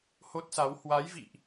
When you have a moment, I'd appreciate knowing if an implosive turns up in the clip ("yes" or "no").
no